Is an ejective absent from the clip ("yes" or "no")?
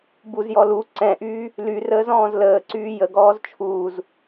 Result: yes